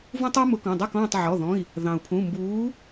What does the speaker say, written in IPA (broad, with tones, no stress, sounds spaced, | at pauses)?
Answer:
v ũ˦ tˤ u˦ m ʊ˨˥ k ɔ̃˩˧˩ dˤ ɑ˥˨ k ɔ̃ː˥˨ tˤ ʕ ɔ˩˧˩ ð ɔ̃˩˧˩ i̯ | ð ɑ̃˩ u̯ pʰ ũ˩˧˩ m b uː˨˥